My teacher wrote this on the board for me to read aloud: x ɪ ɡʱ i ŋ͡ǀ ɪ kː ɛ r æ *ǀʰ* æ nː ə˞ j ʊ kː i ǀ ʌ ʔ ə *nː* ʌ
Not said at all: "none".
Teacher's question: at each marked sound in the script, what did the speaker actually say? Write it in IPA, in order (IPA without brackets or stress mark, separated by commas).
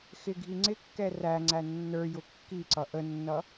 ŋ͡ǀ, nː